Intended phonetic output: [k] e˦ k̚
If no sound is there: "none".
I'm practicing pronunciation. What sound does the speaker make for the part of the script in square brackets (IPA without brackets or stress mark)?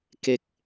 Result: k